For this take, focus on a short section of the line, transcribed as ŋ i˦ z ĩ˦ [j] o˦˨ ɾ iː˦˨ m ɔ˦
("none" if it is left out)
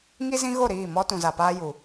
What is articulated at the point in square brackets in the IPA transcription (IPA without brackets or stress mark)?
ɣ